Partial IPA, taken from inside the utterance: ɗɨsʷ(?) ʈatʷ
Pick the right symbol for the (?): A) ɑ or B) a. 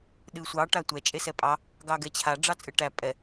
A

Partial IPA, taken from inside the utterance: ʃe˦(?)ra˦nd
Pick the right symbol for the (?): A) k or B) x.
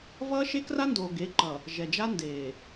A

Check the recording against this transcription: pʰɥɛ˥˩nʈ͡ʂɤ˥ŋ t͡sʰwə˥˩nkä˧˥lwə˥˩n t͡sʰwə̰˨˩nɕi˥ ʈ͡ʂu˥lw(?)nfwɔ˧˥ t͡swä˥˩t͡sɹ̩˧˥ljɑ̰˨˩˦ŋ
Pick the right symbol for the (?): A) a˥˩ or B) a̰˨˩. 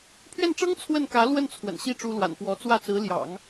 B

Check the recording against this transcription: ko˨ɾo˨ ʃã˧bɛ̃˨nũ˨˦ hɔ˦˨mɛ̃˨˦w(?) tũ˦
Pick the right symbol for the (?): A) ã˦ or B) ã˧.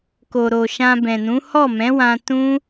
B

